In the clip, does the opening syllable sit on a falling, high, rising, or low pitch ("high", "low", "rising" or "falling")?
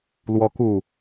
high